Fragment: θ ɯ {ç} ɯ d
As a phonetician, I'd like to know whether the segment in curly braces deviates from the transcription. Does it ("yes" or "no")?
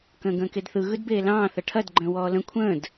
yes